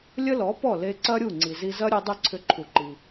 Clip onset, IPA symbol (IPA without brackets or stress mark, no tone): lʲ